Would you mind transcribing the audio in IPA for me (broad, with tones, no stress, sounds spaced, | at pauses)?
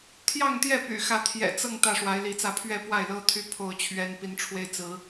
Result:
t̪ʰ j ɑ˥˨ ŋ t̪ j ɛ˥˨ p y̰˨˩ x ä˨˦ t̪ʰ j ɛ̰˨˩ t͡s ɤ˥˨ ŋ t̪ ä˥˨ ʂ w a˨˦ ɪ̯ l i˨˦ t͡s ä˥˨ pʰ ɥ ɛ˥˨ p w a˥˨ ɪ̯ l ɤ˦ t̪ʰ y˦ pʰ o˥˨ ʊ̯ t͡ɕʰ ɥ ɛ˦ n p i˨˦ n ʈ͡ʂʰ w e˦ ɪ̯ t͡s ɹ̩˨˦